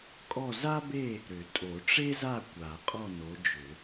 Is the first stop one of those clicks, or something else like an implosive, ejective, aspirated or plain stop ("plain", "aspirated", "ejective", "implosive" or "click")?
ejective